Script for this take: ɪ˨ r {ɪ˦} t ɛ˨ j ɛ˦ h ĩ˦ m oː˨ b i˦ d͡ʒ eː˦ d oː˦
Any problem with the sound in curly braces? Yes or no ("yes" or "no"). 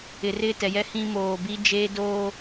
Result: yes